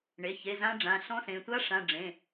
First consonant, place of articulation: retroflex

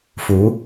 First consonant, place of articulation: labial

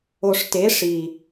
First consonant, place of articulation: retroflex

